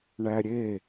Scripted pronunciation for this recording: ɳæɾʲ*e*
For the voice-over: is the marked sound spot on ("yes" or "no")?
yes